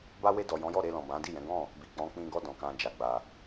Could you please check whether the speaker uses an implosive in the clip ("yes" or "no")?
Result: no